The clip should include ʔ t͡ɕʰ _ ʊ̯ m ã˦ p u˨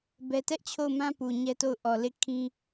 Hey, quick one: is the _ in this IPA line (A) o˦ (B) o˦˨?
B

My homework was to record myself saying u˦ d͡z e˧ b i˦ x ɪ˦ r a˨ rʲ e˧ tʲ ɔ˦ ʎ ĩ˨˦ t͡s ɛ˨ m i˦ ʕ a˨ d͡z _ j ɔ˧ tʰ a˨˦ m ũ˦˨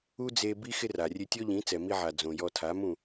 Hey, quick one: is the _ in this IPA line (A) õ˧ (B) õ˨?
B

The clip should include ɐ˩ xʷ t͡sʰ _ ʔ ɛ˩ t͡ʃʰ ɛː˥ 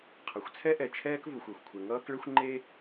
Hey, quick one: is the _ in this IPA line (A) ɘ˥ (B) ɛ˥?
B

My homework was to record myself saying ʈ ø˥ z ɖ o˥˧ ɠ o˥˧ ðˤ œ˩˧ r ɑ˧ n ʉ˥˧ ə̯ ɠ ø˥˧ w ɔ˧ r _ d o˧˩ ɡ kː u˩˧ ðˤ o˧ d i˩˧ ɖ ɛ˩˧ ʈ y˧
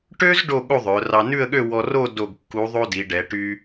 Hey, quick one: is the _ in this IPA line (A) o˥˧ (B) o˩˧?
A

